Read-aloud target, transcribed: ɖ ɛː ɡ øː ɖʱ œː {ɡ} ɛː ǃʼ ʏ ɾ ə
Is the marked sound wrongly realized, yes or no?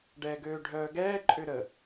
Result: no